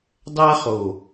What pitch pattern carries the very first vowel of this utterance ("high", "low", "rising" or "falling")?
high